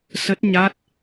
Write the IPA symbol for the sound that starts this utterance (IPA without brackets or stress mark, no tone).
s